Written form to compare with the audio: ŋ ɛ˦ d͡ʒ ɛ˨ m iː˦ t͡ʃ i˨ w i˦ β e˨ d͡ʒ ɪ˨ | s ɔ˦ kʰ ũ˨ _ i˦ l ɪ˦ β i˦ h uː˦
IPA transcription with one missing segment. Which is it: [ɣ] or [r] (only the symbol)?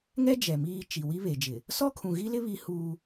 ɣ